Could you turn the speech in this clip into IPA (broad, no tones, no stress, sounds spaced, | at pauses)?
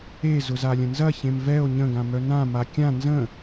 e z ʊ z a lʲ ə̃ n z ɐ ç ẽ m v ɛ o̯ ɲ ə̃ ɡ ã m œ n ã m a kʲ ã n z ə̃